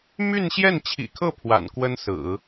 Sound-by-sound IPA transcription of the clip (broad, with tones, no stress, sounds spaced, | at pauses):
m y˥˧ n ɕ j ɛ˥˩ n t͡ɕʰ ḭ˨˩ kʰ ɤ˥˩ pʰ w a̰˨˩ n k w ə˥ n s ɹ̩˨˩˦